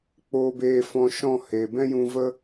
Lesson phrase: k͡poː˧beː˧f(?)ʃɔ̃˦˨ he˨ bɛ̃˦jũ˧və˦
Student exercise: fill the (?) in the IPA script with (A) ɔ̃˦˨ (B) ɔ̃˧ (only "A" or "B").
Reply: B